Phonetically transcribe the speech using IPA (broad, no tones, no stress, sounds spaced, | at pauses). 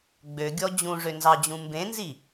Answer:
ɡ͡b ø ɡʲ ɔ d͡ʑ ũ ʐ ø n z ɑ d͡ʑ ũ m b ẽ n z i